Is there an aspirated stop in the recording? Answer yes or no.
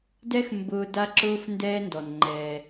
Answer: no